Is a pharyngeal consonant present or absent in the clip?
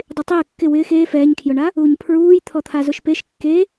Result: absent